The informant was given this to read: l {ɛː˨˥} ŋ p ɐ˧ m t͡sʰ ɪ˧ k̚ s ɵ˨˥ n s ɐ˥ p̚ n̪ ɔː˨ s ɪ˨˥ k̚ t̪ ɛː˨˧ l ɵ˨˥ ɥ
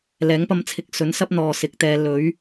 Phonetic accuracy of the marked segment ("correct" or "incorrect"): correct